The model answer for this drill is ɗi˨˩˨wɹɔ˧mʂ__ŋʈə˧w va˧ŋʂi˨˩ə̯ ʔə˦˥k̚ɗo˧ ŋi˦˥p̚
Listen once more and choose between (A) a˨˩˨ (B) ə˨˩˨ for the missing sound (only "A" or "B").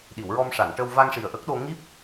A